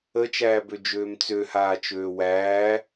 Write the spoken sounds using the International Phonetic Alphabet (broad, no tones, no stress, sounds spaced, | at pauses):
ə t͡ʃ æː b ø d͡ʒ øː m t͡s ø h aː t͡ʃ øː w æː